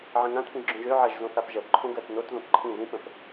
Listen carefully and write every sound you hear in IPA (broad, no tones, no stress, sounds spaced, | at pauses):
ʕ ə̃ ŋ ã t p ĩ ʒ ɡ͡ǁ õ ʒ ø ʕ ɜ ʒ z õ θ a p ʒ ɜ p ǃʰ õ ɡ ɜ t n o t ð õ p ǃʰ ĩ ð ĩ p ə̃ p